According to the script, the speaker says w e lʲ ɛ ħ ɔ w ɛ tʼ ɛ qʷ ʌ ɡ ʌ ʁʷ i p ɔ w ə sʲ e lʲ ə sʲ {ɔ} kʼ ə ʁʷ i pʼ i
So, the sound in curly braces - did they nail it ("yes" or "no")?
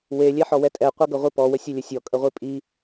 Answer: yes